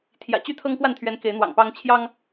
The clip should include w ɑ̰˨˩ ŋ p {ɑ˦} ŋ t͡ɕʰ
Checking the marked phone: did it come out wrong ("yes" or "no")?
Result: no